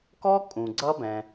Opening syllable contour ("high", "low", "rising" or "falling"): high